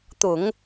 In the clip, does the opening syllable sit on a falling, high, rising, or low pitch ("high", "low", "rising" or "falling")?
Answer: low